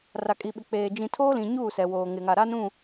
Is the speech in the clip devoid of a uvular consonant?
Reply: yes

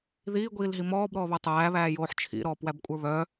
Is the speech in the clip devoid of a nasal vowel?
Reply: yes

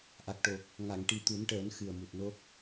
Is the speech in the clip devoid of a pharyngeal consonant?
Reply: yes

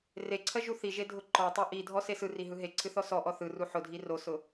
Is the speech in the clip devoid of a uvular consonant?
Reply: yes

